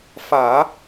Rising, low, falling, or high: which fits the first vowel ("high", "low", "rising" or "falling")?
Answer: low